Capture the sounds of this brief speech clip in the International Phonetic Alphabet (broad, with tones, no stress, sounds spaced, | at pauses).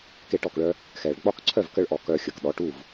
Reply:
k e˧ ʈ ɔ˩ k ɭ œ˧ | x ɛ˩ ɭ ɡ͡b ɒ˥˩ k ǀʰ œ˥˩ v k ə˥ ɭ ʔ ɔ˩ k œ˧ xʲ ə˩ k ɗ ɔ˩˥ ʈ u˥˩ v